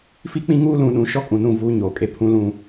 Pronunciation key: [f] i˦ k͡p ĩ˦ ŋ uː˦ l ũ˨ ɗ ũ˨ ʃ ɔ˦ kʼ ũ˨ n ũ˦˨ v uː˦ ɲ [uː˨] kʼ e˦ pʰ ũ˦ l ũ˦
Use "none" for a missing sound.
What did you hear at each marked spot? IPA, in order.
f, oː˨

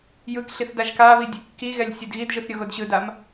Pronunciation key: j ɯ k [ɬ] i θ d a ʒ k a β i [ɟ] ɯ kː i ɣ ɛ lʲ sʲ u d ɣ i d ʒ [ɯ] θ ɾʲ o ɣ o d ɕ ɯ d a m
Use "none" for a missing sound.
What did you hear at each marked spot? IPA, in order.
ɬ, dʲ, ɯ

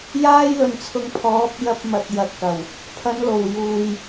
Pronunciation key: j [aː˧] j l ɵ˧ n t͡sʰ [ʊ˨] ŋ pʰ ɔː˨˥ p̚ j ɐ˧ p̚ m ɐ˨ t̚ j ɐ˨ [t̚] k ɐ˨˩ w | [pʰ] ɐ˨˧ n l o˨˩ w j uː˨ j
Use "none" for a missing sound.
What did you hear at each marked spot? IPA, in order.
aː˥, ʊ˧, t̚, pʰ

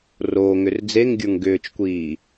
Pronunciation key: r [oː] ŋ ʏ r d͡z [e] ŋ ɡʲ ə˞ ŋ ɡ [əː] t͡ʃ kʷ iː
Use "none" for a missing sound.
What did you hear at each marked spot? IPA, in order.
oː, e, ʏː

